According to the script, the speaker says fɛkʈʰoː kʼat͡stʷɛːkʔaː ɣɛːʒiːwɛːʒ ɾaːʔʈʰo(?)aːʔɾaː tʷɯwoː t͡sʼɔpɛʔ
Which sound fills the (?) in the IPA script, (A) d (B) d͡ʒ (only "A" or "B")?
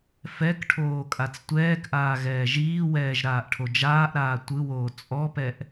B